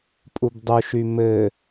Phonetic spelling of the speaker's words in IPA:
pʼ u b dˤ u ʃ y m ɘ

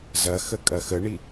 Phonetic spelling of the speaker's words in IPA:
z ɐ x ə kʼ ɐ x ə ɳ i

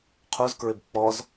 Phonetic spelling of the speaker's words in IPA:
qʰ u z k ɹ ɪ b k͡p ɔ z

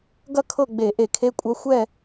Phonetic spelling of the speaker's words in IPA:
ɡ ɐ˥˨ kʰ ɤ˥˨ ɡ͡b e˧˩˧ ʔ e˧˩˧ kʰ e˧˥˧ kʷʼ ɐ˧˥˧ xʷ ɛ˥˨

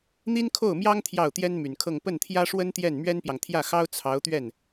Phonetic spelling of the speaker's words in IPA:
n̪ i˥ n kʰ o˥˩ ʊ̯ m j ɑ˥ ŋ t̪ʰ j ɑ˥˩ ʊ̯ t̪ j ɛ˥ n m y˨˩ n kʰ ɤ˥˧ ŋ p ə˥˩ n t̪ʰ j ä˥ ʂ w ə˥ n t̪ j ɛ˥˩ n m ɥ ɛ˥ n p j ɑ˨ ŋ t̪ʰ j ä˥˩ x ɑ˥ ʊ̯ t͡sʰ ɑ˧˥ ʊ̯ t̪ ɥ ɛ˥˩ n

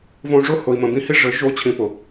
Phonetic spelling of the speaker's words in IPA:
v õ˧ ʐ ʊ˦˨ h ʊ˧ i̯ m ə̃˧ b ĩ˦ h i˦ ʐ ɘ˨˦ ʒ o˧ t͡ɕʰ ĩ˧ p ʊ˨

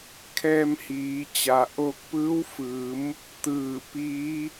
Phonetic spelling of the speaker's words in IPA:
kʰ ɛː˧ m h iː˩˧ t͡ɕ a˩ ʔ oː˧ k̚ p ɯː˧˥ w f ɯː˩˧ m | t̪ ɯː˧˩ p iː˧˥

